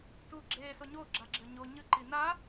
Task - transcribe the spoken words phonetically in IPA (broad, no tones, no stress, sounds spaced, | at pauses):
t u ɡ͡ǁ e s o ɲ o ɡ͡ǁ a ɡ͡ǁ ɘ ɲ o ɲ ɨ ǃ i n a